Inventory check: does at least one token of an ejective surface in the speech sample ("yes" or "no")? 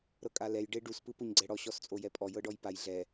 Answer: yes